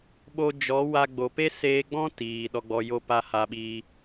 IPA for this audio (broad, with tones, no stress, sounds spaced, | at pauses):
ɓ o˧ d͡ʒ ɔ˨˦ w a˧ ɡ͡b o˨ p e˦ s eː˧ ɡ͡b ɔ̃˦ t iː˨ ɗ ɔ˧ ɡ͡b ɔ˧ j o˦ p a˦ h a˧ ɓ i˧